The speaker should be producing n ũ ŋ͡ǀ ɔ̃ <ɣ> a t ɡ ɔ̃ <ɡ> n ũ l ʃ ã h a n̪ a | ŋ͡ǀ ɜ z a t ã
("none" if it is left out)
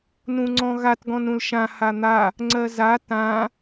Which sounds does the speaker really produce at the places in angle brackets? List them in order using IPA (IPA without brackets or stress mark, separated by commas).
ɣ, none